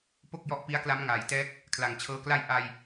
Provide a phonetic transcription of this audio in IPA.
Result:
p o˥˩ k̚ j ɔ˦˥ ʔ p i˦˥ a̯ k l a˦˥ m ŋ aː˨˩ j t ɛː˦˥ k̚ | kʰ l a˨˩ ŋ t͡ɕʰ ɤː˦˥ k l a˥˩ j ʔ a˧ j

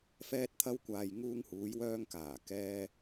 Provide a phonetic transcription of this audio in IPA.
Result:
f ɛː˧ t̚ t̪ʰ ɐ˧ w kʷ aː˨ j ŋ uː˧ ŋ h uː˨˧ j w œː˧ ŋ k aː˨˩ k ɛː˧

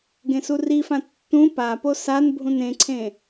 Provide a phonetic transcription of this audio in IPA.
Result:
ɡ ẽ s u r i f ã tː ũ p a p o s a n bʱ ũ n ẽ ǀʰ ẽ

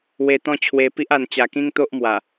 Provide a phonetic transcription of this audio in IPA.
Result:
w e˧ t̪ ɔ̃˦ t͡ɕʰ w e˧ p i˦ ʔ a˧ n t͡ɕ a˧ k ĩ˦ ŋ t̪ o˦ ʔ m w a˨˩

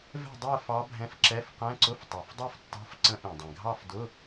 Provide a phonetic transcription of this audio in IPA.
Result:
v ɛ̤˥˨ dˤ ɛ˥˨ f ɑ˧˥ bʱ ɛ̃˧˥ f ǁ ɛ˧˥˧ f q ɛ̃˧˥˧ ǀ ʊ˧˥˧ f tˤ ɛ˨˩ f dˤ ɛ˥˨ f tː ɑ̤˧˥˧ f ǀ ə̃˧˥ ʔ ĩ˨˩ dˤ ɛ̃˨˩ ɡʱ ɑ˥˨ f d ʊ˧˥˧

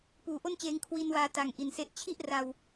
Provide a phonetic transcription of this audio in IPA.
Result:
p uː˨˩ ʔ o˥˩ n t͡ɕ eː˧ ŋ kʰ w i˧ n w aː˧ t a˨˩ ŋ ʔ i˨˩ n s e˦˥ ʔ t͡ɕʰ i˥˩ ʔ r a˧ w

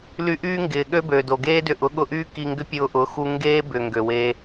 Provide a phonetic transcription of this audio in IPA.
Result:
l y˧ ʔ yː˦ ŋ ɡ ɪː˨ ɠ ø˦ b øː˨ d o˨ ɡ eː˦ d ʏ˧ ʔ ʊ˨˦ ɠ ʊ˧ ʔ yː˦ k i˧ ŋ ɡ ʏ˦ pʲ ʊː˧ ʔ ʊ˨˦ x u˧ ŋ ɡ eː˦ b ʏ˨ ŋ ɡ ø˨ w eː˧

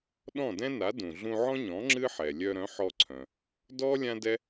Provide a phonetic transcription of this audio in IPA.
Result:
ɗ ɔ̃˥˩ d ɛ̃˥ n a˩˥ d ũ˩ ɮ ũ˧ ʕ ɔ̃˥ ɲ ɔ̃˩˥ ŋ͡ǁ ɨ˥ ħ ɛ˩ lʲ œ˧ ɾ œ̃˩˥ ħ ɔ˧ ǀʰ œ̃˩ | d ɔ˥ lʲ ã˥ d ɛ˥

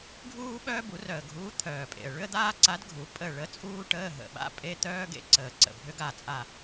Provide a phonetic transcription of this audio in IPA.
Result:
ɡʱ uː˥ ɓ œː˥ b u˨˩˦ r œ˨˩ ə̯ ɡʱ uː˧˥ t̪ʰ œː˨˩ pʼ ḛ˨˩ ə̯ ɭ ʏ˥ ə̯ d̪ aː˥ ǀ a˧˥ d ɡʱ u˨˩˦ pʼ ə˦˨ ɭ ə˧˥ t͡sʼ uː˥ ʈ əː˧˥˧ ɦ ə̰˨˩ ɓ a̰˧˥˧ pʼ e˧˥˧ t̪ œː˥ ɡ ḛ˥ ǀ əː˨˩ ǀ ə̰˨˩ bʱ ʏ˧˥ ɡ a˦˨ t͡sʼ a˦˨

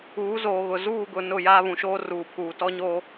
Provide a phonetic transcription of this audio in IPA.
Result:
uː˨˦ z oː˨ ɣ ʊ˨ z uː˦˨ ɡ ʊ˨ n ʊ˦˨ j aː˦ β ũ˨ ʃ oː˦ r uː˨ pʰ uː˨ t ɔ˦ ɲ oː˦

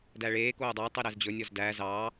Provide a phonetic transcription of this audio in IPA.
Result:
d æ ɭ eː k oː dˤ ɑ tˤ i ɾ æ z d͡ʑ ɵ nʲ ɔ z d æː z ɑː

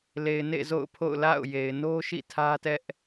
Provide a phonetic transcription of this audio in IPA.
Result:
l e˨ ɪ̯ n ḛ˦˨ z o̰˦˨ ʊ̯ pʰ o̰˦˨ ʊ̯ l a̰˦˨ ʊ̯ j e˨ ɪ̯ n o˦ ʃ ḭ˦˨ tʰ ä˦ t ɛ˦ ʔ

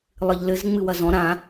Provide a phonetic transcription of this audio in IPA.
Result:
lˠ ɨ ʎ l ɘ z ŋ͡m ɨ w ɐ z ɔ̃ ɾ ã

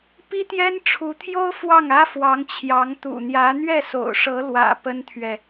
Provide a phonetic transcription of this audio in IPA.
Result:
p i˥ t̪ j ɛ˥ n ʈ͡ʂʰ u˧˥ t̪ʰ j o˥ ʊ̯ f w ɑ˥˩ ŋ ä˥ f w ɑ˧˥ ŋ t͡ɕʰ j ɑ˧˥ ŋ t̪ ṵ˨˩ n̪ j ä˧˥ n̪ ɥ ɛ˥˩ s o̰˨˩ ʊ̯ ʂ ɤ˧˥ l w ä̰˨˩ p ə˥ n t̪ʰ ɥ ɛ˨

